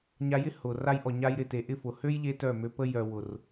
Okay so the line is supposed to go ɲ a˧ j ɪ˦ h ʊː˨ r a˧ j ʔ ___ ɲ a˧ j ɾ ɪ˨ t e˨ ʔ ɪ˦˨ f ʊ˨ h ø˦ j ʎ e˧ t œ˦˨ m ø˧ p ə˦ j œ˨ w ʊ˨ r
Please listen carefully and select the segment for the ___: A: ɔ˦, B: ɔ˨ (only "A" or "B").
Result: B